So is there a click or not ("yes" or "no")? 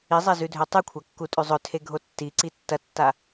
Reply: yes